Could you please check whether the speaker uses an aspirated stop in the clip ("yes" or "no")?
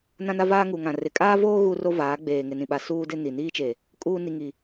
no